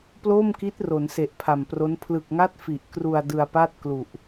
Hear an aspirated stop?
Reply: yes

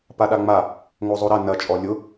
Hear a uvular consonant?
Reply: no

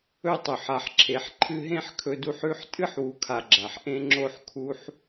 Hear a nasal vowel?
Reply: yes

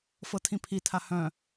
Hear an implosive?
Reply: no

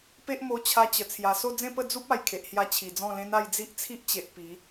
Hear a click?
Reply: no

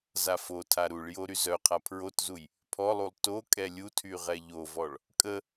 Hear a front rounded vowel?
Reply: yes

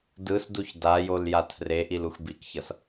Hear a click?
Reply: no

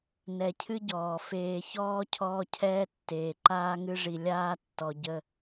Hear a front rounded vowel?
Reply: no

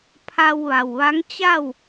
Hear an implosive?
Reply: no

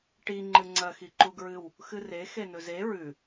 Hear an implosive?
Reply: no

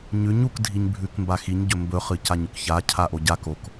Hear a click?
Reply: no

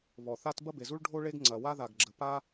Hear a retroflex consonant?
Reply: yes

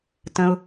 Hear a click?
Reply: no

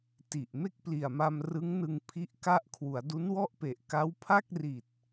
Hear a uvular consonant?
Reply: no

